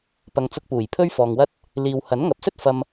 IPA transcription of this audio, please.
p ɐ˧ ŋ t͡s ʊ˧ k̚ p uː˨˩ j pʰ ɵ˥ ɥ f ɔː˨ ŋ w ɐ˥ t̚ | l iː˨ w h ɐ˨˥ n ŋ ɐ˨˥ p̚ s ɵ˥ t̚ f ɐ˧ m

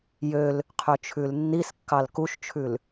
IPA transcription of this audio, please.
j ø l | qʰ ø t͡ʃʰ ʉ l nː i s kː ɑ l k u ʃ t͡ʃʰ ʉ l

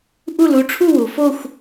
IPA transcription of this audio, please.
ʔ u˥˧ l u˧˥ ʈ͡ʂʰ u˥˧ w u˩˧ f o˥˧ xʷ

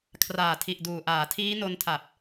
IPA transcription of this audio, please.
kʰ r aː˨˩ tʰ i˨˩ ʔ d uː˨˩ ʔ aː˩˦ tʰ iː˦˥ n o˧ n tʰ a˨˩ p̚

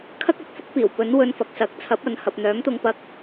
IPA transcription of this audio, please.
kʰ ɐ˥ k̚ ɐ˧ p̚ f ʊ˥ k̚ p iː˨˩ w p ɵ˨˥ n w ɵ˧ n f ɐ˨ k̚ s ɐ˨˥ k̚ t͡sʰ ɐ˨˥ p̚ ɐ˨ n h ɐ˨ p̚ n̪ œː˨˥ m t̪ ʊ˧ ŋ p ɐ˧ k̚

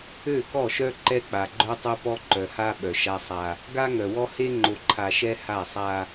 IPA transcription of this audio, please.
ø˦˨ k ɔ˦˨ ʃ œ˦ ǃ ɛ˦ k͡p a˨ ɡ͡ǃ œ˦ tˤ o˦ p ɔ˦ ǃ œ˨ h a˦ ɓ œ˨ ʃ a˦ sˤ a˦ | ɡ a˦ ŋ œ˨ w ɔ˦ h e˦ ŋ͡ǃ o˨ ǃʰ a˨ ʃ ɛ˦ h a˦˨ sˤ a˦

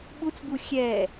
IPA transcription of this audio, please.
ɓ u t͡s b u xʲ ɛː

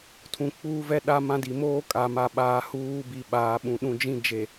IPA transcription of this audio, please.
tʰ ũ˨ k͡p uː˦ v ɛ˦ ɗ a˦ m ã˦ d i˨ m oː˦ kʼ a˨ m a˨ ɓ aː˨ h uː˦ b i˨ ɓ aː˨ ɓ ũ˨ ɗ ũ˨ d͡ʒ ĩ˦ d͡ʒ e˨

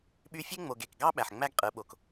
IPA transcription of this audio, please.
ɓ y˧ fʲ e˦ ŋ͡m o˨ ɡ e˨ k ɡ ɑ˦ ɓ æ˨ ħ ŋ͡m æ˦ ɡ qʼ ɯ˨˦ ɓ o˨ k

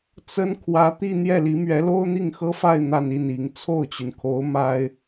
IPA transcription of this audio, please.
t͡s ə˥ n kʰ w ä˧˥ t̪ i˥˧ n̪ j ɛ˥˩ l i˧˥ m ɥ ɛ˧˥ l o˥ ʊ̯ n̪ i˥˩ ŋ x ɤ˥ f a˥˧ ɪ̯ n̪ a˥˧ n i˥˩ n i˧˥ ŋ t͡sʰ o˥˩ ʊ̯ t͡ɕ y˩ n kʰ o˧˥ ʊ̯ m a˥ ɪ̯

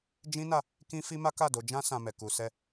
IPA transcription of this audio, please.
d͡ʒ ĩ˦ n a˦˨ | k ĩ˦ f i˦ m a˦ k a˦˨ d o˧ d͡ʒ ã˦ s ã˧ m ɛ˨ k u˧ s ɛ˦

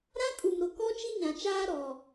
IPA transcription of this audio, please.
ɾ ã˦ kʼ u˨ m ɾ ʊ˨ k ɔ˦ t͡ʃ i˦ ɲ ã˨ t͡ʃ aː˦ ɾ ɔ˨

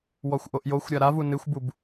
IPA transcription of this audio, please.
w ɔ xʷ ʔ o ʔ j o xʷ ɾʲ a ɾ a v u n ɨ xʷ b u b

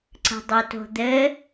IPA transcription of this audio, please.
ǀ ə̤ dˤ o t o̤ d̪ ɘ

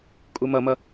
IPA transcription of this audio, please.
kʼ u m ʌ m ʌ

